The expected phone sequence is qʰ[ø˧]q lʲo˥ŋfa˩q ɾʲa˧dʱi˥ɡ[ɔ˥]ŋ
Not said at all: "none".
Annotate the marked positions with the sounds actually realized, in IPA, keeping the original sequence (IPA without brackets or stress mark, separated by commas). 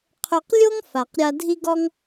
ø˧, ɔ˥